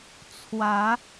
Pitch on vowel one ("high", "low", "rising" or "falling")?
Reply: rising